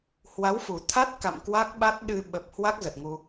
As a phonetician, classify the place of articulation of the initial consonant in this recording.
glottal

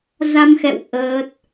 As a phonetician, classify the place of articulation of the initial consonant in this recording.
alveolar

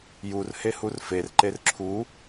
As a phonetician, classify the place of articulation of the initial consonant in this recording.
palatal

